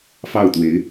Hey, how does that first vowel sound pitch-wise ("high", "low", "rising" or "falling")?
falling